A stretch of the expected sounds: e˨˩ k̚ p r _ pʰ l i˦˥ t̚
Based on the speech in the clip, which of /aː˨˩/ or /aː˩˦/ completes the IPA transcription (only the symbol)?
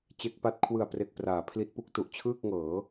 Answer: aː˩˦